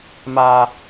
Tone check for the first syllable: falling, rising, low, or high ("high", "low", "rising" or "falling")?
high